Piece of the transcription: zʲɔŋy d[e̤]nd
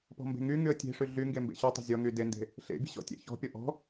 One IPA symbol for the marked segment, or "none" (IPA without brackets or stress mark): e